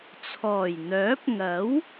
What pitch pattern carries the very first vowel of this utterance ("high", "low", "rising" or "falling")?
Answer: low